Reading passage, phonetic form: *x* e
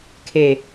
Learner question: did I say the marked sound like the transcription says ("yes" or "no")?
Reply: no